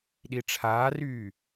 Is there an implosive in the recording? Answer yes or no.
yes